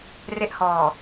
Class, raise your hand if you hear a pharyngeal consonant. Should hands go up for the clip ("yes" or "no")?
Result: no